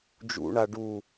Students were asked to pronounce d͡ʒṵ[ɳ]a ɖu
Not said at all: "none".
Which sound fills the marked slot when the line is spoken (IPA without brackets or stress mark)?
ɳ